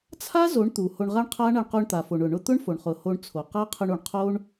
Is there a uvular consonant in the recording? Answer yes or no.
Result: yes